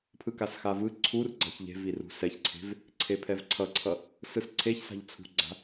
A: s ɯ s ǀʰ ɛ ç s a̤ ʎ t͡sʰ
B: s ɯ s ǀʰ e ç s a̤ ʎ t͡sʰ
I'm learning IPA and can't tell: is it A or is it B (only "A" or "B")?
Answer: B